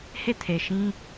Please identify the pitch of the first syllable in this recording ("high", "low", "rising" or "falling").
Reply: falling